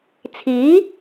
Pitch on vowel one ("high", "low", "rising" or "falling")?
rising